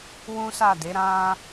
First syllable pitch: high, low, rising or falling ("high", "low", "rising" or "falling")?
high